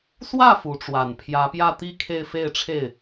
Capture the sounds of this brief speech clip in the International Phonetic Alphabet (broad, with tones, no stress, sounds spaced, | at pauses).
s w ä˥˩ f u˧˥ ʈ͡ʂ w a˨˩ n pʰ j ä˧˥ p j ä˥˧ t̪ i˥˧ kʰ e˥˧ ɪ̯ f e˥˧ ɪ̯ ʈ͡ʂʰ e˥˩ ɪ̯